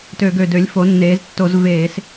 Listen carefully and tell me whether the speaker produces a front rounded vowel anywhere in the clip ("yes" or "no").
yes